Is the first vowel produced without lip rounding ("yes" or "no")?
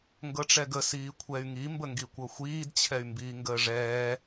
yes